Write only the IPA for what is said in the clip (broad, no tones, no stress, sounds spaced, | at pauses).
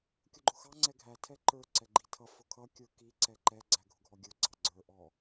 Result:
kʲ ʊ ɡ͡ǃ ʊ x ɑ ŋ͡ǀ ɛ ɡʱ æ tʰ ɛ ǃ ə˞ ǀ ɛ ɡ͡ǃ i tʰ ʌ f ʊ kʰ ʌ kʲ ə˞ k i ǀ ɛ ǃ ɛ ɡ͡ǀ æ ɡʱ ʊ ɡʱ ɔ ɡʲ ə˞ ɡ͡ǀ ɑ ɡ͡ǀ ə˞ ʔ ɔ